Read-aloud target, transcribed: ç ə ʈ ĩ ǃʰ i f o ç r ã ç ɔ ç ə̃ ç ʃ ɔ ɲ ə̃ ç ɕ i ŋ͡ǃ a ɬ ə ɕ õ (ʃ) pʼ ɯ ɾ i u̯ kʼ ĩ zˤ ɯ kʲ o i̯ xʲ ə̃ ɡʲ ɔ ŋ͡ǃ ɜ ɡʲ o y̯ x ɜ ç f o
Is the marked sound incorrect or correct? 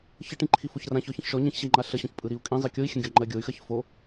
incorrect: ç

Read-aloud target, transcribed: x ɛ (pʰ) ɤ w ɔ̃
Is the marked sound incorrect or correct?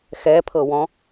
correct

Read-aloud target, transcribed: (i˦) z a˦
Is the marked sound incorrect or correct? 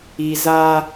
correct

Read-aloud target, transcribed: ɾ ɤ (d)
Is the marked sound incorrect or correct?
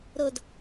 correct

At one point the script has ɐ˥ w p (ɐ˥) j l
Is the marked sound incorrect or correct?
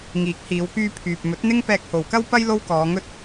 correct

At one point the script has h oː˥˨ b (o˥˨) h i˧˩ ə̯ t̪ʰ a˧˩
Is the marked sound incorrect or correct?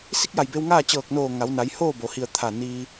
incorrect: o˩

